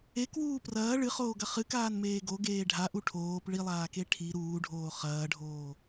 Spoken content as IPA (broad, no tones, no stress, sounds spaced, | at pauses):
e k w uː p r ɐː ɭ ɨ χ oː ɡ ɐ χ ɨ k aː n m eː ɡ o ɡ eː ɖʱ a ʔ u ʈʰ oː p ɭ i lˠ aː k e ʈʰ i ɾ uː ɖʱ oː χ ɐː ɖʱ oː